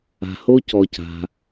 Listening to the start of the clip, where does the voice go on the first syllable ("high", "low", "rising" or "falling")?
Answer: low